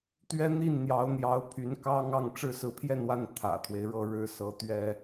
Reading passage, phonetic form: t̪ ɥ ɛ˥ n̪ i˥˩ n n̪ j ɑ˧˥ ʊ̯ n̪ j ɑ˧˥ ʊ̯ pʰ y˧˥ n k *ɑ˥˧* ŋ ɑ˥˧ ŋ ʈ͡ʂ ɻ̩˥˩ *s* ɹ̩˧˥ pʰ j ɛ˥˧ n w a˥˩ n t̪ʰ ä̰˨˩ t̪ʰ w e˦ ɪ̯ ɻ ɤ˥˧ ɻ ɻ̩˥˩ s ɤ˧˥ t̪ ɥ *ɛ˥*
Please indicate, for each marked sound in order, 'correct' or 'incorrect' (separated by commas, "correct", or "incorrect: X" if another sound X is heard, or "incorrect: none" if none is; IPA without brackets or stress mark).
incorrect: ɑ˥, correct, correct